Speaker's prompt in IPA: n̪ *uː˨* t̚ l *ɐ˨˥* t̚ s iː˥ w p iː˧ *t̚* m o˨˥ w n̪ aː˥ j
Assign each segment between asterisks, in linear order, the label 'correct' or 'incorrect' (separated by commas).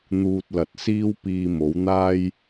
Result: incorrect, incorrect, incorrect